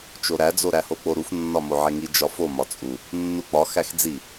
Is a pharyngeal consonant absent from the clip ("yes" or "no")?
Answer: no